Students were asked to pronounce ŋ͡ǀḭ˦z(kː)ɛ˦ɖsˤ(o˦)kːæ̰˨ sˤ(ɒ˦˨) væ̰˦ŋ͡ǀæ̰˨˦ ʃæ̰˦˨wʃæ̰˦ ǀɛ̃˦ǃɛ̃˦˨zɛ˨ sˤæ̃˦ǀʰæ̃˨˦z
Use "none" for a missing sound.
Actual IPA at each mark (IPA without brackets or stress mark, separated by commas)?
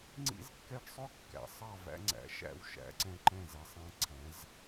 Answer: kː, ɵ˦, ɑ˦˨